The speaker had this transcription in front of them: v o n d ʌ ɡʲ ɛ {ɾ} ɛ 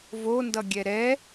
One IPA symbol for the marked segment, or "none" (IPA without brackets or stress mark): ɾ